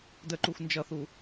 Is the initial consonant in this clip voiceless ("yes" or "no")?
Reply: no